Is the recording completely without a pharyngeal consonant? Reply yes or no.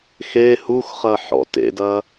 no